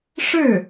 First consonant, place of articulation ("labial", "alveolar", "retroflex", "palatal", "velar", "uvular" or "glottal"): retroflex